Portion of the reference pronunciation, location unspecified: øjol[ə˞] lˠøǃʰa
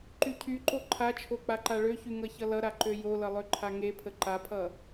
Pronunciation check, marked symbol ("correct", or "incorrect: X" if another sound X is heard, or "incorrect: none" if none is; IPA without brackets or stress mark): incorrect: ʌ